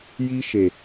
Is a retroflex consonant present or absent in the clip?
absent